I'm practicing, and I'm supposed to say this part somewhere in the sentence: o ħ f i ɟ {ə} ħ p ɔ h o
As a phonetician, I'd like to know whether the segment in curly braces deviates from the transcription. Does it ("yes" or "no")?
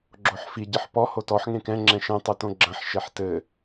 yes